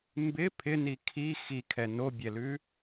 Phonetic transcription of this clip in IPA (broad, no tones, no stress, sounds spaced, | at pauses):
m b ɪ pʰ ɪ n i kʰ i x i kʰ ɛ n o bʲ ɛ l ʉ